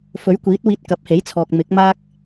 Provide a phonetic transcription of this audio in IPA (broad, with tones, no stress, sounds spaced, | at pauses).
f ɵ˨˥ ɥ kʷ iː˨˥ t̚ w iː˧ t̚ k ɐ˨˥ p̚ h e˨˥ j t͡sʰ ɔː˨ k̚ m ɪ˨˥ k̚ m aː˥ k̚